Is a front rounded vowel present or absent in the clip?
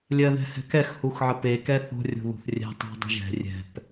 absent